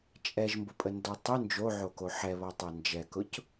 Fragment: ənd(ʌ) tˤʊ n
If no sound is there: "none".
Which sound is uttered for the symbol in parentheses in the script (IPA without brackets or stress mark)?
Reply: ɔ